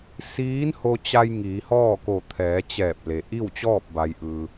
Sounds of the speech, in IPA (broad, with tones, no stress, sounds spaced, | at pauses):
s iː˧˥ n h o˧ t͡ɕ a˧ j ŋ iː˩˧ h ɔː˥˨ k o˧˩ t̪ʰ ɛː˩˧ t͡ɕ ɛː˧˩ p̚ l e˩ ʔ i˥˨ w t͡ɕ ɔː˥˨ p̚ b a˩ j ʔ ɯː˩